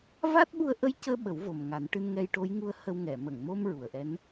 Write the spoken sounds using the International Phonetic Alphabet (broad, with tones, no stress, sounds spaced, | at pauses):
v a˦˥ t̚ ɓ u˧ ə̯ ʔ ə˧˥ j c əː˧ ɓ ə˨˩˦ w v o˨˩ m ŋ a˨˩˦ n ʈ ɨ˧ n ŋ ɛ˧ j ʈ o˧˥ j ŋ u˧ ə̯ h ə˧ w ŋ ɛ˨˩˨ m ə˨˩˨ ŋ m o˧ m ɹ u˨˩˨ ə̯ ʔ ɛ˧˥ n